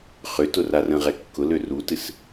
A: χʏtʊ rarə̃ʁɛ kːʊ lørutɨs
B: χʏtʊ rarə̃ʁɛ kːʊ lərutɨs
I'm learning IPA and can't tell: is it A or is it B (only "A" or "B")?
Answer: A